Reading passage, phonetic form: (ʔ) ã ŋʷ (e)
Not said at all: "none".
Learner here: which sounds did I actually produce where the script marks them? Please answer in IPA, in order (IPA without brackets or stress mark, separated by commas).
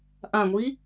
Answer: ʔ, i